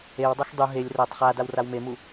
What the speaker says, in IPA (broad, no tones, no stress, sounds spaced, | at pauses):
e w dˤ o x dˤ u ɦ e lʲ r ʌ tˤ χ a d a w r a w m e m u